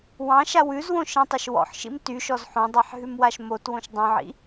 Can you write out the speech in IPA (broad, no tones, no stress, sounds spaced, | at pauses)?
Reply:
w ɑ̃ ʃ a w ʉ z w õ ʃ ĩ tˤ o ʃ w ɔ̰ ħ ʃ ḭ m t y ʃ ɔ z ħ õ dˤ a ħ ɦ ʉ m w a ʃ m o t w õ ʃ dˤ õ ʕ ḭ